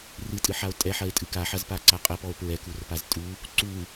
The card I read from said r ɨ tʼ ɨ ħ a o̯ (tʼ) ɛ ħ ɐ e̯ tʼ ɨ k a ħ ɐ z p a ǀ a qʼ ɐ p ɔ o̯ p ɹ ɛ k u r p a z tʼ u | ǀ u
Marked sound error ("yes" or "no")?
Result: no